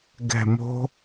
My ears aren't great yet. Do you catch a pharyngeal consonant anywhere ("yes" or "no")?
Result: no